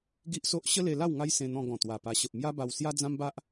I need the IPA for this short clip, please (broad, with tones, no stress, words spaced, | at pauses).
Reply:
ɡi˦ʔso˦ʔ ɕə˦le˧la˥˧w ŋa˦jsẽ˧n̪ɔ̃˧ ɡɔ̃˨˩ t̪wa˨˩pa˧ ɕə˨p̚mja˦ba˧w sja˦d͡zã˦mba˦ʔ